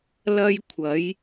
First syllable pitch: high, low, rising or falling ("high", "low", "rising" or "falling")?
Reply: high